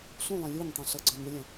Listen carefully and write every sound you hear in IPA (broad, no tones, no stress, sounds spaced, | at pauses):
ɬ ũ lˠ ĩ lʲ u ɲ tˤ ũ ɬ ʌ ɡ͡ǀ ɔ̃ ɲ u lʲ æ̃